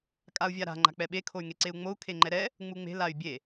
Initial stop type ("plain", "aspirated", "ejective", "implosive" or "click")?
ejective